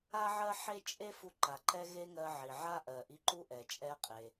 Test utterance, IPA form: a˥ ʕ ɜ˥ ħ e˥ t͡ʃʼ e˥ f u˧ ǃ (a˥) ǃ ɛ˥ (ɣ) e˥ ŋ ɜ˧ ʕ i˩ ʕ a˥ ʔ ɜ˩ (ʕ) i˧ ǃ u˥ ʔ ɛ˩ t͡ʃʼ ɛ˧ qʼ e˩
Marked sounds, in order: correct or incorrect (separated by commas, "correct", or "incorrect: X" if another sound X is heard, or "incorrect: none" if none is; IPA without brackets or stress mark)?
incorrect: a˩, correct, incorrect: ʔ